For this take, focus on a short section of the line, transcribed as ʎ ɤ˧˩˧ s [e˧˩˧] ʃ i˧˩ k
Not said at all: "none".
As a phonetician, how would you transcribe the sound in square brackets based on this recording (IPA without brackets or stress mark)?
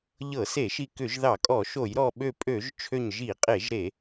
e˧˩˧